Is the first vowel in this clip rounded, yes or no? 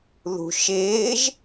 yes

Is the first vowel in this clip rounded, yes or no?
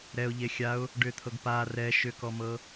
no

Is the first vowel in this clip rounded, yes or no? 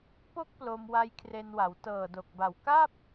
yes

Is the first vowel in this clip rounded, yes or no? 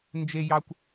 no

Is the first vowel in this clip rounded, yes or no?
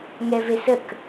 no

